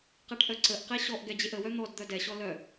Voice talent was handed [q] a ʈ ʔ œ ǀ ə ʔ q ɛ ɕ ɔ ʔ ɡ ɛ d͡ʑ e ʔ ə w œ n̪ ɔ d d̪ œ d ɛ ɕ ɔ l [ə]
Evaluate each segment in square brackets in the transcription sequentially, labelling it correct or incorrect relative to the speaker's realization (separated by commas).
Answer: correct, incorrect